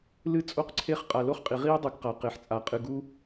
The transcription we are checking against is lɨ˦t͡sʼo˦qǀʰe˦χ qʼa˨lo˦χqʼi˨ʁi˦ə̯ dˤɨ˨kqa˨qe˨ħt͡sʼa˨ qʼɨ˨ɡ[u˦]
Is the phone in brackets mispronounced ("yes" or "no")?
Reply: no